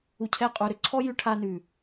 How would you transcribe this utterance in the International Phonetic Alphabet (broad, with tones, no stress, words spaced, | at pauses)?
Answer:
u˧cʰɛ˦˨qʼu˧ ɾʏ˧ǀʰɔ˦ jʉ˧ʈʰa˧nʉ˨